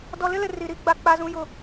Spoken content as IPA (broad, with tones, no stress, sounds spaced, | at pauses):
d ɔ˨ l ɪ˦ l ɪ˨ r i˨ ɾ i˦ ɡ͡b a˨ k͡p a˦ z ũ˦ j ʊ˦